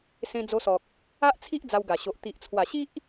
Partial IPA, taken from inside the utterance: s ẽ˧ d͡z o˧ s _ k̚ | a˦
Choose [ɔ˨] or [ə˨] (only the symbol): ɔ˨